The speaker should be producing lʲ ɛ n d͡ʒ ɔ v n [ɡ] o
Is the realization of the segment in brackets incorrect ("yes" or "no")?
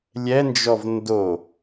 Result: yes